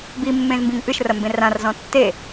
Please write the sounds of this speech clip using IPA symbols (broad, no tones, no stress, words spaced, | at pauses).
bimːẽzmbĩŋ ʔɨʃrɐmbẽ rãrzɔ̃ tːe